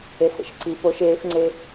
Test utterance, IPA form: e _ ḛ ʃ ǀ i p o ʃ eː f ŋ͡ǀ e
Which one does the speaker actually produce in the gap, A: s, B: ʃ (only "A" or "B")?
A